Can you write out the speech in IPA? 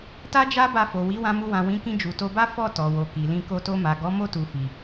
t a˦ d͡ʒ a˦ b a˧ f o˨ w i˨˦ w ã˧ m u˧ w ã˨ w ĩ˨˦ k ĩ˧ d͡ʒ u˨ t o˧ b a˦ f ɔ˦˨ t ɔ˨ w o˨ k i˨ l ĩ˧ k o˧ t o˧ m a˨ ɡ ɔ˨˦ m o˦˨ t u˨ f i˨

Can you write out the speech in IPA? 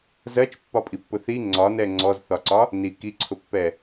z ɜ t͡ʃ pː ɒ pʼ i pː ʊ θ i ŋ͡ǀ ɒ n ɛ ŋ͡ǀ ɔ z θ ɒ ǀ ɒ | n i k i ǀʰ ʊ pː ɛ

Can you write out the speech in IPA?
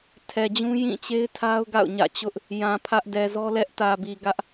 tʰ ɛ˨ d͡ʑ ũ˦ j ĩ˦˨ t͡ɕ e˦ ɪ̯ tʰ a˦ ʊ̯ ɡ a̰˦˨ ʊ̯ ɲ ä̰˦˨ t͡ɕ ʊ˦ ʔ | j ã˨ pʰ ä˦ ʔ d ɛ˨ z ɔ˦ l ɛ˦ ʔ t ä˨ b i˨ ɡ ä˦ ʔ

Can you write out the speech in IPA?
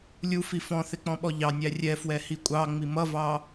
lʲ u f i f ɔ̃ θ ɪ k͡p ɔ̃ ɓ ɔ ʎ ɑ nʲ æ rʲ ɛ f w ɛ h i kʷʼ ɑ ŋ͡m i m ʌ v ɑ

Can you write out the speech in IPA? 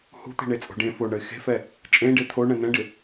h ṳ t̪ e̤ ɳ e t͡sʼ o̤ ɖ ẽ f o ɳ ə ɪ̯ x e̤ f ɛ | t͡ʃʼ ẽ ɖ e t̪ʰ o ɳ ɛ̃ n̪ ɛ̃ ɖ ɪ

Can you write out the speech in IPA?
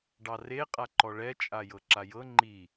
ɖ ɑ r e qʼ a ǃ ɔ ɭ ɛ t͡ʃʼ a j ɤ ǁ a j ɤ ŋ͡ǃ i

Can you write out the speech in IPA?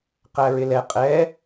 q æ ɹ ɪ l ɛ qʼ ɛ

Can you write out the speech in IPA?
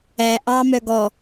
æ ʔ ɑ m œ ɡ ɔ

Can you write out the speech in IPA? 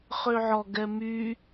χ ø ʕ ɔ ɡ ɛ m y

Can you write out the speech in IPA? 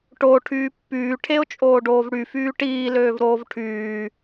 ʈ o ʈʰ yː pː yː ʈʰ e ʊ̯ t͡ʃʼ oː ɖ oː v ɽ y f yː ʈ iː l øː v ɾ oː v ʈʰ yː

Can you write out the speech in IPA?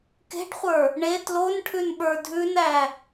k e̤ ɖ χʷ ə˞ | ɳ e t l o n ʈʰ ʉ n ɓ ə˞ dʱ ʉ n æ

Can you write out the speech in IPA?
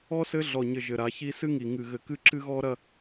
ɔ˦ s ɘ˦ ɮ ɔ˨ ɲ ɘ˨ ʒ ɘ˨ ɾ a˨˦ ç i˦ s ɨ˦ ŋ i˨ ŋ ɨ˨ ɣ ɘ˨ k ɨ˦ ǁ ɨ˦ ɣ ɔ˦ ɾ ɐ˦

